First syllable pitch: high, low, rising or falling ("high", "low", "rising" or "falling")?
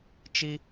high